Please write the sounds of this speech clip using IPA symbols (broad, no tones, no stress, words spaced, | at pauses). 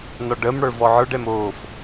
nɒɖəmɽə˞ vɔʕə˞ɖɛm oːf